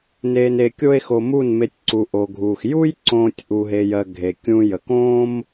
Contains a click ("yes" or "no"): yes